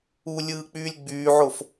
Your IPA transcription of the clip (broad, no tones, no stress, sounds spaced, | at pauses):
u lʲ ɯː k͡p yː lʲ ɡ͡b yː ʕ o f